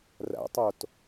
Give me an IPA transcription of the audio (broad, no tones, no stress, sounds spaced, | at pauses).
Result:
r æ̰ tˤ o t